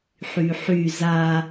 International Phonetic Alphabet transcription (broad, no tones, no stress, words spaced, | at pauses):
ħyħy za